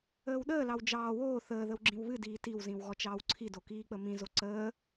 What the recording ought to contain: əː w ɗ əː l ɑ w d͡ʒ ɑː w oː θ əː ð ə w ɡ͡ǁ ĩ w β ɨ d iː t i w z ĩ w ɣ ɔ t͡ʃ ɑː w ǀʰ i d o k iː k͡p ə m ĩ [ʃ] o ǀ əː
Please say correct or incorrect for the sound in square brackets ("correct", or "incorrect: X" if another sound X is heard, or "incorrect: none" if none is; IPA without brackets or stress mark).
incorrect: z